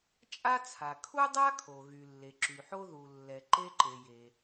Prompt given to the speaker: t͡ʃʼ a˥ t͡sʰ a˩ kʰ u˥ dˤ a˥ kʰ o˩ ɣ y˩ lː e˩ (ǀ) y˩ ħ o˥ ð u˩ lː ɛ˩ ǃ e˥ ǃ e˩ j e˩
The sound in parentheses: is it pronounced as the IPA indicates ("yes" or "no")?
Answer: no